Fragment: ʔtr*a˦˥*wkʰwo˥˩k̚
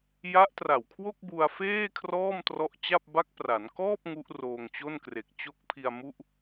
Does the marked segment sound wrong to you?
yes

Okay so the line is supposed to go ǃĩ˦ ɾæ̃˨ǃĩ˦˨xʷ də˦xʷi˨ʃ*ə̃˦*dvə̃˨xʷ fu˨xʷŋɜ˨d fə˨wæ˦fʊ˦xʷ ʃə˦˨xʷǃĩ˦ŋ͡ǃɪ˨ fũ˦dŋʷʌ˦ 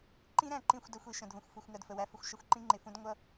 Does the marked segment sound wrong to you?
yes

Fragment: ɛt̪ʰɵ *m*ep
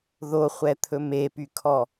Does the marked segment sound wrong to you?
no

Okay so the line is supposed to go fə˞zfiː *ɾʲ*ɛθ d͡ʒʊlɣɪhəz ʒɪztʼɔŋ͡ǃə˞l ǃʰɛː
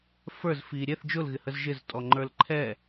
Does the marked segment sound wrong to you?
no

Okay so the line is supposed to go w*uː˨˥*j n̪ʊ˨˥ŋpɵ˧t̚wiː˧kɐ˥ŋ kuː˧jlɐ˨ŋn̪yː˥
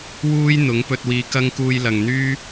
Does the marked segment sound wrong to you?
yes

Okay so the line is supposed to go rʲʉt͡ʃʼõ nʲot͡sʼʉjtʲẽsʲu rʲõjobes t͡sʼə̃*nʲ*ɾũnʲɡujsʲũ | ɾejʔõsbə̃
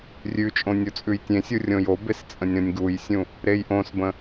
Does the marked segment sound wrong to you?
no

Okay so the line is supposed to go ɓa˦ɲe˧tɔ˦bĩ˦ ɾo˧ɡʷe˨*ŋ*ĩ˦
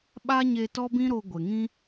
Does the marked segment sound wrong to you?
no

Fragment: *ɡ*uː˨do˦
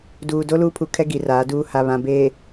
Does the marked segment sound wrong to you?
yes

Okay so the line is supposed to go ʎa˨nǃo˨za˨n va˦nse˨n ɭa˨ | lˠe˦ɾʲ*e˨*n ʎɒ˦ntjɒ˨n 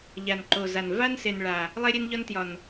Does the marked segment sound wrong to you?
yes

